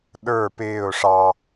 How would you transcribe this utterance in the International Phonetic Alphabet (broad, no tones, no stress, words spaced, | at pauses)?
ɗə˞ pɪːʊ̯ ʂɑ